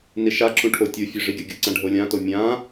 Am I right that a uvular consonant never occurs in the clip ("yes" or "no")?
yes